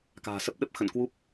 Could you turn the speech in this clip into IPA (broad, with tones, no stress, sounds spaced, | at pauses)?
k a̤ː˨˩ s ə˦˥ p̚ ɗ ə˦˥ p̚ x ə̰˧˨ n k w u˦˥ p̚